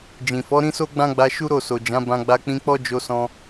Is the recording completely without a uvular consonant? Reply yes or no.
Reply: yes